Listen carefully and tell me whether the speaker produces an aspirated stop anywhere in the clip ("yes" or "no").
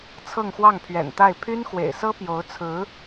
yes